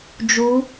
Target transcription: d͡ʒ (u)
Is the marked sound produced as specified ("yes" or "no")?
yes